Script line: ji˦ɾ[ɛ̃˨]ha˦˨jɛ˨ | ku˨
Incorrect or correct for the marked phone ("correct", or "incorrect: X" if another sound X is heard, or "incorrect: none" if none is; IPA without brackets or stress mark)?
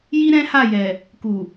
incorrect: ɛ̃˦